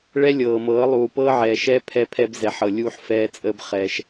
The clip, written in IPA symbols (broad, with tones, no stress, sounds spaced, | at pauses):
ɭ ɛ˦ lʲ ɤː˨ m ɤː˨˦ lˠ uː˨ p ɤː˦ ʕ ɛː˨ ʃ ɛː˦ pʰ ɛ˦ pʰ ɛ˦ b z ɛ˨ ħ ɤ˨ lʲ uː˦ ħ f ɛː˦ t͡sʼ əː˦ b χ ɛː˦ ʃ